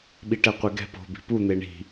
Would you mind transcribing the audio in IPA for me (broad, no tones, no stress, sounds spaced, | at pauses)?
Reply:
ɓ i ʈ ɛ qʷ e ɡ ɛ̤ p o̤ b i̤ p u n̪ e ɳ i̤